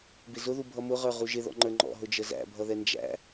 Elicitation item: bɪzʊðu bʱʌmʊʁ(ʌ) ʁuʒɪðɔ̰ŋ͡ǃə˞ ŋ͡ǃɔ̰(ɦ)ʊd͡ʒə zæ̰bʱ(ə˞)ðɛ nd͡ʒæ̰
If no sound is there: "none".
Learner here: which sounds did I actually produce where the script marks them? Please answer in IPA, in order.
ə˞, ɦ, ʌ

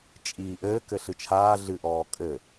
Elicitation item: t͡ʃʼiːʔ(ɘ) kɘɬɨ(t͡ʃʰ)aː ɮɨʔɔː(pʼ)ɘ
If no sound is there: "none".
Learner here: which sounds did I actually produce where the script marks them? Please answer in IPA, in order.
ɘː, t͡ʃʰ, kʼ

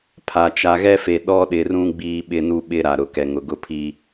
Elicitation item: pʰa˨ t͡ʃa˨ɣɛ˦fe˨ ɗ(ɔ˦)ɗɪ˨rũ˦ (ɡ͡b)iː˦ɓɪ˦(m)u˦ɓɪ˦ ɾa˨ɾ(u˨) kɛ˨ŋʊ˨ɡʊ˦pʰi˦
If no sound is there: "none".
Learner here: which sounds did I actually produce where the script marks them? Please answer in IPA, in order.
ɔ˦, ɡ͡b, n, ʊ˨

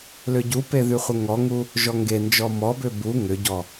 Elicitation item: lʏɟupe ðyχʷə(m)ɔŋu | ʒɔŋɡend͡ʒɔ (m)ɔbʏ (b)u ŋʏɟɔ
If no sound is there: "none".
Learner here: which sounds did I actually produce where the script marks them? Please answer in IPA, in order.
ŋ, m, b

